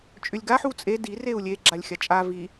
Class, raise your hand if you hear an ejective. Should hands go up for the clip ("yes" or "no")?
yes